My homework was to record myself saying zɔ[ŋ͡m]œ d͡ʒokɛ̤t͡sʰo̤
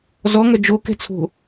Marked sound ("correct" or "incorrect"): incorrect